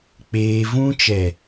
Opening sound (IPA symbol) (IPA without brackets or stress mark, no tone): k͡p